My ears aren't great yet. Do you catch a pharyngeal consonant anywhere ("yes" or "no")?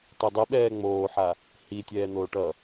yes